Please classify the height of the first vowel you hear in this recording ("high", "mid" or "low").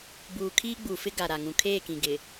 high